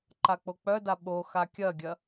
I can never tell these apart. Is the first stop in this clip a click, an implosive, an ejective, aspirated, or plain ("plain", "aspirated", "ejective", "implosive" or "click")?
click